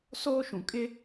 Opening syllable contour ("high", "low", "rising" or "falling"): high